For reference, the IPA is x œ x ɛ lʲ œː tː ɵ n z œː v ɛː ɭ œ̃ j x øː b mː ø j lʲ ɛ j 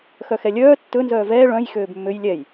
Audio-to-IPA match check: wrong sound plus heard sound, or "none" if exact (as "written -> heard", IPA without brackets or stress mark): none